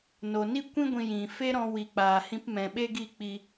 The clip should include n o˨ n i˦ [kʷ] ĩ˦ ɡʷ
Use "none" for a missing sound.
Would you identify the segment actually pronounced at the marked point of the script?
kʷ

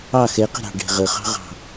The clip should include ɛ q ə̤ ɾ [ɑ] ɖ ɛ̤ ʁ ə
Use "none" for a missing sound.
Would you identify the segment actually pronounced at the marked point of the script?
ɑ̤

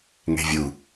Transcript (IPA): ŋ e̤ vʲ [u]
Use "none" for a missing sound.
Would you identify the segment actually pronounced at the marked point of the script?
u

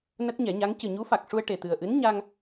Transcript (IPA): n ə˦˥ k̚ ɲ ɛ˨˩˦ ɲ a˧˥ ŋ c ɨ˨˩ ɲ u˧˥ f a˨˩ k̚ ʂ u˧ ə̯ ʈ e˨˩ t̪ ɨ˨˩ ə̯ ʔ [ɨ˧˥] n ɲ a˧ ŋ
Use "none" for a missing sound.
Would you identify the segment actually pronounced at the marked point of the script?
ɨ˧˥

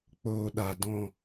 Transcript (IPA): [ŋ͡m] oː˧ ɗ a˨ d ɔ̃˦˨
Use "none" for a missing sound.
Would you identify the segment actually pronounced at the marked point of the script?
k͡p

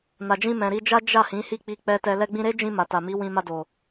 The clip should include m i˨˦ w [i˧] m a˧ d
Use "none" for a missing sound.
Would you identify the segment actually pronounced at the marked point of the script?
ĩ˧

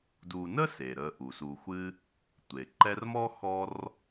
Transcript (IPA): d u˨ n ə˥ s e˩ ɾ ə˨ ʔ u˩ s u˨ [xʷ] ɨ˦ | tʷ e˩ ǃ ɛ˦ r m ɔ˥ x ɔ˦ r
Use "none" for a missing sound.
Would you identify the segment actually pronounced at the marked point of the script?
xʷ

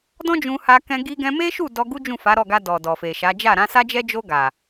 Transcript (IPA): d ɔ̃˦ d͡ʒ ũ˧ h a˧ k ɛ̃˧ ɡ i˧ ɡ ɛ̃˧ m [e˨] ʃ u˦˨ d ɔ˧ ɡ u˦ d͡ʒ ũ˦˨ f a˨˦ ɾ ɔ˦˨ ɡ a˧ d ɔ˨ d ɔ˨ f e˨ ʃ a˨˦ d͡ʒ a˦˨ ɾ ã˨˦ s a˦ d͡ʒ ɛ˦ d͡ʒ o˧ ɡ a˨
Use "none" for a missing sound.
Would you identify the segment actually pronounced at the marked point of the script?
e˦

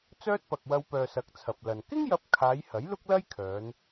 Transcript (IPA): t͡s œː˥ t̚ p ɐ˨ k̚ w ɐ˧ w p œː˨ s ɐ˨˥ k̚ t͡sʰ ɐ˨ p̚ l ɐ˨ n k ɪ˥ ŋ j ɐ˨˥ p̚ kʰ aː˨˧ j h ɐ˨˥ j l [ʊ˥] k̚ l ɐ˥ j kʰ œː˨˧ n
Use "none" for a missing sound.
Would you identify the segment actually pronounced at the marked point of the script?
ʊ˥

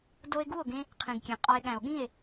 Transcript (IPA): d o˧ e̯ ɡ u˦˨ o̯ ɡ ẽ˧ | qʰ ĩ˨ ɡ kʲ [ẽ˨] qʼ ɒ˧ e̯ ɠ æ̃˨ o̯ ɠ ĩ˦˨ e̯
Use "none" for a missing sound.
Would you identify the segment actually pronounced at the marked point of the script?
ẽ˨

